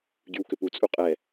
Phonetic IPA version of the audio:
ɟ y w k ʏ p u t͡sʼ u qʼ ɛ

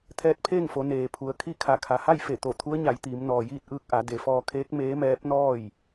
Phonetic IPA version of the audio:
t̪ʰ ɛː˧˥ t̚ pʰ eː˥˨ ŋ f o˩˧ n eː˩ pʰ u˩ ə̯ kʰ i˥˨ kʰ a˧˩ kʰ a˩ h a˥˨ j f e˧˩ t̪ o˧˩ t̪ʰ u˧˥ ə̯ ɲ a˩˧ j t̪ iː˩˧ m n ɔː˩ j iː˥˨ t̚ ʔ ɯː˧ k̚ ʔ a˩˧ d e˩ f ɔː˧ kʰ eː˧˥ k̚ m eː˧˥ m ɛː˧˥ p̚ n ɔː˥˨ j

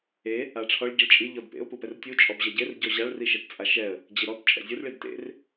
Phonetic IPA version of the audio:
e | a ʈ͡ʂʰ ɔ ɭ ɟ i ɭ t͡ʃʼ i ʎ ɔ d p ḛ ʊ̯ p u p ɛ r tʲ u t͡ʃʼ ɔ b ʑ ɛ ɟ e r ɟ ɔ ʑ a ɭ r i ʃ ɛ t t͡sʼ a ʃ ɛ ə̯ | d͡ʑ i ɾ ɔ t t͡ʃʼ ɛ̰ zʲ u r ɭ i d t ḛ r

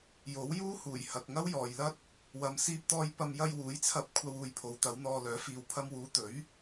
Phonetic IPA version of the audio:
j o˨˥ w j uː˥ h uː˨˩ j h ɐ˨ k̚ ŋ ɐ˥ w j ɔː˨ j l ɐ˥ t̚ | w ɐ˨ m s iː˧ p̚ t̪ ɔː˧ j p ɐ˧ m j ɐ˧ j w uː˨˥ j t͡sʰ ɐ˧ p̚ kʷʰ ɐ˧ w uː˨ j pʰ o˨˧ w t̪ ɐ˨˥ w n̪ ɔː˧ l œː˨˥ f iː˨ w pʰ ɐ˧ m w uː˨˧ t̪ ɵ˨˥ ɥ

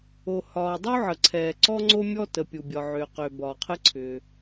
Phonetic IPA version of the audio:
o˩ h ɒː˩ dˤ u˥ ʕ ə˩ ǀʰ ɛː˩ ǀ ɔ˥ ŋ͡ǀ o˥ mʲ ɔ˥ t ə˩ pʲ u˩ bʲ ɒ˩ ʕ ʏː˩ q ʏː˩ b ɒː˩ qʰ ɘ˥ ǀʰ ʏː˩

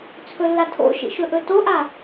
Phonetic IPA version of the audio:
t͡sʰ ɵ lː a tʰ o̰ ʃ ḭ ʃ ɵ ʔ ɵ t o ʔ a

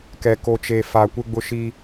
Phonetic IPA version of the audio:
k ɛ˨ k o˨ t͡ʃ e˨ f a˨ kʷ ɪ˦ ɡ͡b ʊ˦ ʃ iː˦

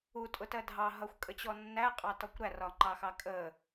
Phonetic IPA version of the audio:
u tʼ ʊ t ɜ dʱ ɑ ɦ ʌ xʷ kʼ ə t͡ɕ ɔ nː æ qʼ ɑ t ɔ kʷ ɾ æ r ɒ ŋ͡ǃ ɑ x ɑ kʼ ə

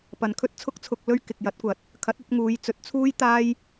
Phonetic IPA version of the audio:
p ɐ˨ n kʰ ɵ˥ t̚ t͡sʰ ʊ˥ k̚ t͡sʰ ʊ˧ k̚ l ɵ˥ ɥ k ɪ˨ k̚ j ɐ˨˥ t̚ kʷ ɐ˨˥ t̚ | kʰ ɐ˨˥ t̚ ɐ˧ t̚ ŋ uː˨˧ j t͡s ɵ˨˥ t̚ t͡sʰ uː˥ j t̪ aː˥ j

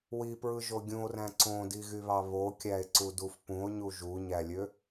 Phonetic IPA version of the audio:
w i p ɹ ɯ ʒ o ɡʲ ũ o̯ r æ̃ ǀ õ d i ɣ y β ɑ β o kʲ æ e̯ ǀ u d u f p ũ o̯ ɲ u ʒ u ɲ æ lʲ ø

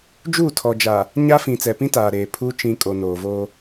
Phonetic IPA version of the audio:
d͡ʒ uː˦˨ tʰ ɔ˨ d͡ʒ a˨ | ɲ a˦ f ĩ˨ t͡s ɛ˨ p ĩ˦ t aː˨ ɾ eː˨ pʰ uː˦ t͡ʃ ĩ˨ kʼ o˨ n oː˨ v o˦

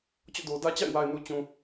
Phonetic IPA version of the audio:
t͡ɕ ɔ̰˦˨ d o˨ d ä˦ t͡ɕ a̰˦˨ ɪ̯ w a˨ ɪ̯ n u˨ t͡ɕ ũ˨

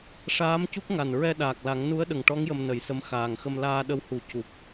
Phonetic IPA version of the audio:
ʂ aː˧˥ m c u˦˥ k̚ ŋ a˨˩ n ɹ ɛ˧ ɗ aː˨˩ k̚ l a˨˩˦ ŋ n u˧˥ ə̯ ɗ ə˨˩ ŋ ʈ ɔ˧˥ ŋ j ə˧ m n ə˨˩˦ j s ə˧˥ m x aː˨˩ ŋ x ə˧ m l aː˧ ɗ ə˧˥ w h u˨˩˦ c u˨˩ p̚

